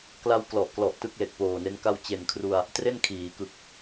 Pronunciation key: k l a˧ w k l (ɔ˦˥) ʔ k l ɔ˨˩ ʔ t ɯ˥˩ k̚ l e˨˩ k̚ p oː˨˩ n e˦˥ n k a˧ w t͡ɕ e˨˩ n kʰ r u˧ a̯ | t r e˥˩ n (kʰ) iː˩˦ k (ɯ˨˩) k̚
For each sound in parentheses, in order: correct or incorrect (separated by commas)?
incorrect, correct, correct